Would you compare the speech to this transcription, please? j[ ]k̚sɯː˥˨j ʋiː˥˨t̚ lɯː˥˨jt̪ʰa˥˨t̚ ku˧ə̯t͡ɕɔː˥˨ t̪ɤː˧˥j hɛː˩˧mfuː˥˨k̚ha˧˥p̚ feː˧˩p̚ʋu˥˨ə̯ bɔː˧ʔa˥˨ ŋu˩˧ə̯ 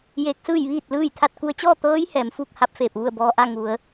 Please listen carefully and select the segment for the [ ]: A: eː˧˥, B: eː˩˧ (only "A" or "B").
A